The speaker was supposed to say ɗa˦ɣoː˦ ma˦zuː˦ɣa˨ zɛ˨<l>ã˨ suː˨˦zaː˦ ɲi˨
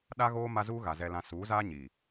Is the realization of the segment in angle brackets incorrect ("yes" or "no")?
no